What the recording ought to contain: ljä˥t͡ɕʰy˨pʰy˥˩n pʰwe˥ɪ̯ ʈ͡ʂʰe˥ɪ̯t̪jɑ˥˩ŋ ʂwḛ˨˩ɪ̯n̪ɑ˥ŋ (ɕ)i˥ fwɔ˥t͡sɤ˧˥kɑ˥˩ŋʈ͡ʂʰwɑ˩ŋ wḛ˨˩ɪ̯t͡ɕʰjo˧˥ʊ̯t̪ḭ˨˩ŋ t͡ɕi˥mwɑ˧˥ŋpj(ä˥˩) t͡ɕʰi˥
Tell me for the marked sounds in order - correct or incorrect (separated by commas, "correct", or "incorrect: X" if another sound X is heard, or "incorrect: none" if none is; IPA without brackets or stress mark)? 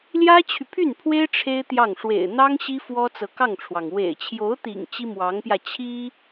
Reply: correct, incorrect: ä˧